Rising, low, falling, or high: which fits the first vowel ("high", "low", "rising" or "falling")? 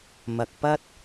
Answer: low